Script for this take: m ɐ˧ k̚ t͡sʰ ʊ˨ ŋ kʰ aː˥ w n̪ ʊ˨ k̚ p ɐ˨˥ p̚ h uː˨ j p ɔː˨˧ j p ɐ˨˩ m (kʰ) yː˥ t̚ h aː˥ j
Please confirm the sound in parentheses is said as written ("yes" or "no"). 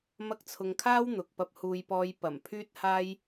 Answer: no